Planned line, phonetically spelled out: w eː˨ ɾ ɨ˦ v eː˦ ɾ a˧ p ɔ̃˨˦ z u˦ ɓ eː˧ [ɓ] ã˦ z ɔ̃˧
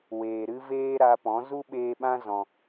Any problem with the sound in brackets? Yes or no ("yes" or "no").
no